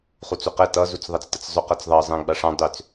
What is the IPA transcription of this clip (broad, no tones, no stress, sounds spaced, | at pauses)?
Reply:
χ u t͡s u q ɛ t ʌ z u t͡s ðˤ ʌ t͡s t ə t͡s zˤ ʏ q ʌ t͡s ðˤ ʌ zˤ ɛ̃ ɡ͡b a ʂ ã dˤ ʏ t͡s